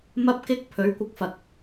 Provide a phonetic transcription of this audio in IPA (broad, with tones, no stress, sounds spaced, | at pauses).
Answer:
m ɐ˥ p̚ k ɪ˥ k̚ pʰ ɵ˨˥ ɥ kʷ ɪ˧ k̚ f ɐ˨ k̚